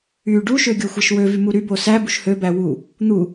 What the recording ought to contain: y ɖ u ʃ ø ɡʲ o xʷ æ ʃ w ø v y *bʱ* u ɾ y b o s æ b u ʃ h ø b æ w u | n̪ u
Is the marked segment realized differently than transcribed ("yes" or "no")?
yes